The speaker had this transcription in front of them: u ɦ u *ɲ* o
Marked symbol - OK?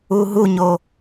yes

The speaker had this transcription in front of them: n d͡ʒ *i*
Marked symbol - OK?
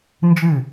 no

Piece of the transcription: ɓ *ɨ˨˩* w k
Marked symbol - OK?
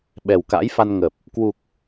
no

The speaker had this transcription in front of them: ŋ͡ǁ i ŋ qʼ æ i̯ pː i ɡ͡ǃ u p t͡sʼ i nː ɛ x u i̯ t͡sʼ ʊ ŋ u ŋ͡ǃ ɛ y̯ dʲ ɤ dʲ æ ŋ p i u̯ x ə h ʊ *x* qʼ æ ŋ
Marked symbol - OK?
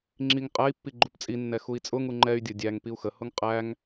no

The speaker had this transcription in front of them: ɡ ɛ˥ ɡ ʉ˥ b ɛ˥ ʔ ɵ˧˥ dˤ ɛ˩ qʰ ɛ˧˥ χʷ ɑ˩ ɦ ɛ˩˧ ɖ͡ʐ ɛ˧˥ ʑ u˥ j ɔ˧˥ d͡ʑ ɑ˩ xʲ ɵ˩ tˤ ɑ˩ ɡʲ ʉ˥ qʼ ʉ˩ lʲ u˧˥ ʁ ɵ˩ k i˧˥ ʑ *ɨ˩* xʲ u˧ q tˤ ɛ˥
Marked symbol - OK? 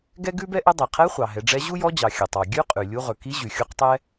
no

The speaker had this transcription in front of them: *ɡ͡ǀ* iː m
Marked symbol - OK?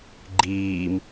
no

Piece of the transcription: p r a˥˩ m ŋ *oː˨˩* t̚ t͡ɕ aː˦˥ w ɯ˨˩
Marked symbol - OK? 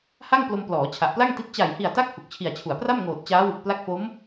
yes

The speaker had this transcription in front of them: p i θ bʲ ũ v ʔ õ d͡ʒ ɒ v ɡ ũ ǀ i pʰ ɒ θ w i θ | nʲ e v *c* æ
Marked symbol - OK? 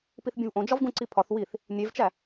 no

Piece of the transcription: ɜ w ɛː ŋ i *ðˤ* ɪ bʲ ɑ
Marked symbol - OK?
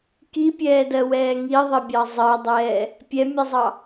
yes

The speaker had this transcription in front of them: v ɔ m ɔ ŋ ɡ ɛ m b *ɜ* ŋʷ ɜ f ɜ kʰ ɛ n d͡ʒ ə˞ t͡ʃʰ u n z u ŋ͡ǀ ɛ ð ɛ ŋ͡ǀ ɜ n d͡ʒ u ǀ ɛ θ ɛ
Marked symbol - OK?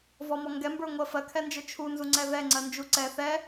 no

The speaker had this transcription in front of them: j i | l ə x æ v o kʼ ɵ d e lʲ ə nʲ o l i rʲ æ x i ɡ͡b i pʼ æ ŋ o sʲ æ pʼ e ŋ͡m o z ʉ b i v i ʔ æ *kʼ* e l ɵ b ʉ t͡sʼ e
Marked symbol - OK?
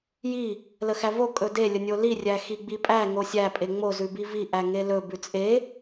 no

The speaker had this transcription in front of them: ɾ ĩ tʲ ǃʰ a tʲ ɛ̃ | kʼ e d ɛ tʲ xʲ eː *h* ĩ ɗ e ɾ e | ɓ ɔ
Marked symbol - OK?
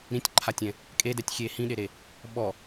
yes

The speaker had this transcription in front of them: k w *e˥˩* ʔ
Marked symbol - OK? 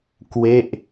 yes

